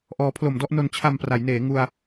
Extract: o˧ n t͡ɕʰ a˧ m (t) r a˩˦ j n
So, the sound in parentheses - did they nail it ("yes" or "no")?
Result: no